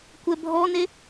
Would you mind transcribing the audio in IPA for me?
kʷ ɛ bʱ ɔ n e

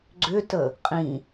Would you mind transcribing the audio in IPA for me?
ɡ͡ǀ ʏ t ə | qʼ ĩ

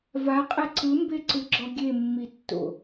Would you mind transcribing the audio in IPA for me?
v a qʼ ɛ ǀ ɯ m b e ǀ ɯ ɡ͡ǁ ɔ ɡʲ e mː i tː o̰

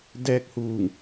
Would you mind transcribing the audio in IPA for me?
d ɛː˧ k̚ h uː˧˩ ŋ

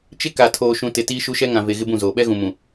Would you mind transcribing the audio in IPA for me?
t͡ʃ ɪ˦ k a˨ tʰ oː˨ ʃ ũ˨ t ɪ˨ t iː˦ ʃ u˦ ʃ ɛ˦ ŋ ã˨ v e˨ ɣ ɪ˦ b ũ˦˨ z oː˨ ɓ ɛ˦ ɣ ũ˨ m ũ˨

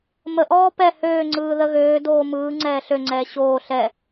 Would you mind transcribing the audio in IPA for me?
m ə ʔ ɔː p ɛ h øː ŋ͡ǀ ɯː ð ə ɣ øː d oː m ɯː ŋ͡ǀ ɛː ɬ ø ŋ͡ǀ ɛː ɕ oː ɬ ɛ

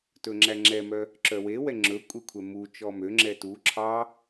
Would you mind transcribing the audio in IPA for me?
t ɵ ŋ͡ǁ æ ŋ͡ǁ ɛ m œ | ǁ œ w e w ɛ ŋ͡ǁ ɵ kʷʼ e kʷʰ ɛ m u t͡ʃ ɔ m ø ŋ͡ǁ ɛ t u ǁʰ ɑ

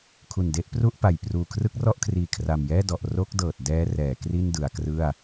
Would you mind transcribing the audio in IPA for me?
kʰ u˨˩ n d e˦˥ ʔ p r u˥˩ ʔ p a˨˩ j p r uː˨˩ kʰ r ɯ˦˥ k̚ r ɔ˥˩ ʔ kʰ r iː˨˩ kʰ r a˨˩ m j ɛː˥˩ d ɔ˨˩ ʔ r o˦˥ k̚ d ɤː˨˩ t̚ d ɛː˦˥ r ɛː˩˦ k r i˥˩ n d ɯ˩˦ a̯ k r ɯ˥˩ a̯

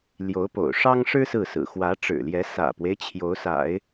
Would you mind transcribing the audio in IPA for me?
l j o˧˥ ʊ̯ p o̰˨˩ ʊ̯ ʂ ɑ˥ ŋ ʂ ɻ̩˥ s ɹ̩˥˩ s ɹ̩˨˩ x w ä˧˥ ʈ͡ʂ ɻ̩˨˩ l j ɛ˧˥ s ä̰˨˩ p w e˦ ɪ̯ t͡ɕʰ j o˧˥ ʊ̯ s a̰˨˩˦ ɪ̯

